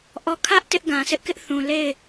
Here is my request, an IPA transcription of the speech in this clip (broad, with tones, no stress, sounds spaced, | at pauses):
ʔ ɔ˦˨ kʰ ä˦ ʔ t ɪ˦ ʔ ɡ ã˨ s ɪ˦ ʔ k ɪ˦ ʔ θ ũ˨ l e˦˨ ɪ̯